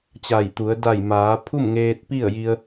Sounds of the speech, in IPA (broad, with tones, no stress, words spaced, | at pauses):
t͡ɕa˧˩jt̪u˩˧ə̯ da˧˩j maː˩˧pʰu˥˨mŋeː˧t̚ pi˥˨ə̯ji˧ə̯